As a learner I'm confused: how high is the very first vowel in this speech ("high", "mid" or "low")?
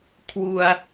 high